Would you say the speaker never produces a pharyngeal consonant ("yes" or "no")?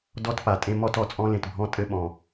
yes